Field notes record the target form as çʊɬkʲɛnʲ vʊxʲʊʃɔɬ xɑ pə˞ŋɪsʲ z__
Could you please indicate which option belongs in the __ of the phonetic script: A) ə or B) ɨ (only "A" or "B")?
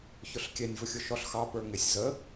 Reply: A